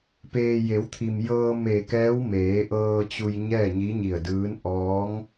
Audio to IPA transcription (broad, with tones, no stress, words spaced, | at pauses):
peː˩ je˩˧wt̪ʰi˩m jɤː˧ me˧˩kɛː˧˥w meː˩˧ʔɤː˧t͡ɕu˧j ɲɛː˥˨ɲi˧˥ɲi˧˩ə̯dɯː˧˥n ʔɔː˧˥ŋ